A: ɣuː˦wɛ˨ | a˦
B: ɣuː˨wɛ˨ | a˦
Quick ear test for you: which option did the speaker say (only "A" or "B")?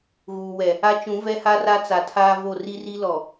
B